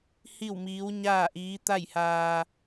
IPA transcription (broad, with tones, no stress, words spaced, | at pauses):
hi˥˨wmiː˧˥wɲaː˥˨ʔiː˧˥ t̪a˥˨jhaː˧